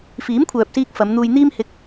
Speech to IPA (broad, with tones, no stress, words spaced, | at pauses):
fiː˨˥mkʷʰœː˨p̚ siː˧k̚ fɐ˨˧mn̪uː˧j n̪iː˧mhɪ˨˥k̚